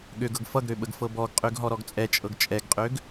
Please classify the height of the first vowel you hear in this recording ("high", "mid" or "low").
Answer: mid